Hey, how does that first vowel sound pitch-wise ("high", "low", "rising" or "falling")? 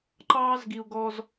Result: high